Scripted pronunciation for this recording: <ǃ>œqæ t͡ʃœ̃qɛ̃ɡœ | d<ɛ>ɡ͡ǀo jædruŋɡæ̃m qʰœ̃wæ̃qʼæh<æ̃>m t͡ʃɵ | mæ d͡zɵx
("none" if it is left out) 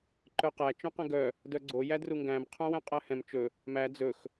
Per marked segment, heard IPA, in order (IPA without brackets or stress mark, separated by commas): ǃ, œ, ɛ̃